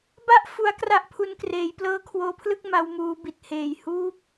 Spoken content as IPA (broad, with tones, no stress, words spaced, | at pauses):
ba˥˩ʔ fu˦˥a̯kra˥˩ʔpʰu˧n kreː˩˦jplɤː˦˥kʰwoː˧pʰlɯ˥˩k̚ ma˧wmuː˧bi˨˩t̚heː˨˩j huː˦˥p̚